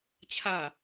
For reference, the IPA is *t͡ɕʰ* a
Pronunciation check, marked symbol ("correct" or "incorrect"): correct